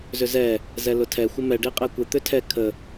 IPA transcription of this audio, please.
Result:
zʏzɛ | zɛlʊtʰɛ xʷɪmɛ ɖiqʼɛkʷɪ t̪ʏtʰɛ kʰə

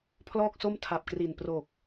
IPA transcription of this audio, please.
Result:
pʰlɔː˥˩k̚so˥˩m tʰa˨˩p̚kri˨˩n pro˨˩k̚

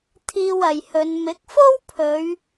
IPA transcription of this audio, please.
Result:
t̪ʰiː˧wɐ˨jhɵ˨˧n mɪ˨˥k̚fo˥wpʰɵ˨˧ɥ

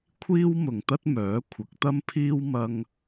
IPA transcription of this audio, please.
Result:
kʷʰiː˥wmʊ˨ŋt̪ɐ˥t̚ mœː˨˥kʷʰɐ˨˥k̚t̪ɐ˥mpʰiː˥w mɐ˥ŋ

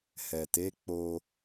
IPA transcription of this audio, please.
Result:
hɛ˨te˨˦k͡po˧

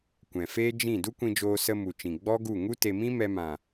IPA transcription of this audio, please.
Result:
kʷɛ̃˨feː˦ d͡ʒĩ˦˨ du˦kʷĩ˧ d͡ʒoː˧sə˧mu˨t͡ʃĩ˨ ɡ͡bɔ˦ɡu˦˨ ŋu˦te˧mĩ˦ mɛ˧mã˨

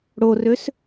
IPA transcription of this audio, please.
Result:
ɽorøs

